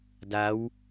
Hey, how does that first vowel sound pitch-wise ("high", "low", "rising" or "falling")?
rising